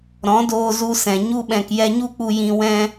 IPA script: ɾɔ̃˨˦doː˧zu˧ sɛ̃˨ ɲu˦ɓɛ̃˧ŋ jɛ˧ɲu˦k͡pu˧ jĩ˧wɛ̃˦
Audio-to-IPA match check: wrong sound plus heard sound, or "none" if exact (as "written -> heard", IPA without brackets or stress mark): ŋ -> k